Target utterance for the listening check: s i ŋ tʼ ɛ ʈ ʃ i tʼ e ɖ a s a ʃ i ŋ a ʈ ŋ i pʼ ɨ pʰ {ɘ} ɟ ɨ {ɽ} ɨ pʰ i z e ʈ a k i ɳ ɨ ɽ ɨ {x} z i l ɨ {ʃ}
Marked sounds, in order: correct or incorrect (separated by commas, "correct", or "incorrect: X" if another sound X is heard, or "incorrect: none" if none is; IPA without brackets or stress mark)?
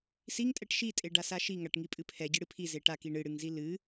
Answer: incorrect: ɛ, correct, incorrect: ŋ, incorrect: none